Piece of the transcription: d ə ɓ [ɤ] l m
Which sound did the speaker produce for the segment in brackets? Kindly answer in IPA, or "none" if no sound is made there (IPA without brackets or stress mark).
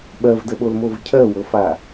o